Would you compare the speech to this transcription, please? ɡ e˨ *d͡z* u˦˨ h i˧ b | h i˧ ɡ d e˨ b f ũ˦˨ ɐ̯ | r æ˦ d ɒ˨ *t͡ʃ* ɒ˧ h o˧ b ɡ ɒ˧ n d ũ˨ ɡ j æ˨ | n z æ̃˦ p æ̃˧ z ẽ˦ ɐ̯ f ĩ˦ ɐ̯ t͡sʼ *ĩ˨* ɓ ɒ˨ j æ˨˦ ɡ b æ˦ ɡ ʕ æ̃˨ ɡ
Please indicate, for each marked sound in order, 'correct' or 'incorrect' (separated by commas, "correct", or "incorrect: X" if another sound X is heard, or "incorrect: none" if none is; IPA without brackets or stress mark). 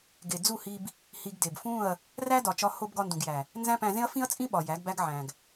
correct, correct, incorrect: ĩ˦